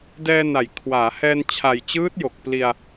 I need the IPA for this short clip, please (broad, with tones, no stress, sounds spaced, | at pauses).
d ɛː˧ n a˩˦ j kʰ w aː˩˦ h ɛː˧ n t͡ɕʰ a˨˩ j t͡ɕ ɯː˦˥ t̚ j o˨˩ k̚ p l i˧ a̯